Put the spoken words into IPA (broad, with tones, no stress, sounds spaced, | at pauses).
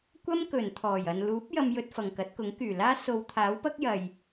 kʷ ɐ˥ m k ɵ˨˩ n t̪ʰ ɔː˨˩ j ɐ˨ n l uː˨˥ p̚ j ɐ˧ m j ɵ˧ t̚ f ɐ˨ ŋ k ɐ˨˥ t̚ k ʊ˨˥ ŋ k yː˨˩ l aː˥ s o˧ w t̪ʰ aː˨˥ w p ɐ˥ k̚ j ɐ˨ j